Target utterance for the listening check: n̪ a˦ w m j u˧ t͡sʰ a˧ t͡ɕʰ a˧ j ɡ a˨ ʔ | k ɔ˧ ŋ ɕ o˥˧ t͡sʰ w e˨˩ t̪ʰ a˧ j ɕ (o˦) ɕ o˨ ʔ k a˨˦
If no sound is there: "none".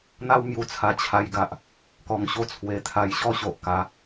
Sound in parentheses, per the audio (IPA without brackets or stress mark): ɔ˦